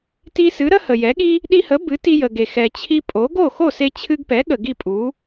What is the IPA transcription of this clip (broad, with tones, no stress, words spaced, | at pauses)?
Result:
ti˧sɨ˩˥ ɾə˥hə˩jɛ˩˥ɠi˥ | ɗi˧hə˩˥ bɨ˩˥ti˧jə˩ɡe˩ xɛ˩t͡ɕʰi˧pʼo˩˥ ɡo˥˩ xo˥˩se˧t͡ɕʰɨ˧ɡpɛ˩˥ ɠə˩ɡi˥˩pʼu˩˥